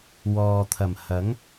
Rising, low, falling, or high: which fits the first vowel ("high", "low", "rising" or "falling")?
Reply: low